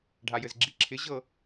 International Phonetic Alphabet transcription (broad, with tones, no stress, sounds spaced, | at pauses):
ɖʱ a˩ j ɘ˩ z ɡ͡ǁ i˩ ǁʰ ɪ˩˥ ʑ ɤ˥˩